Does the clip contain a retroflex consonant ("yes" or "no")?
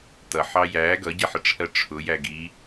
yes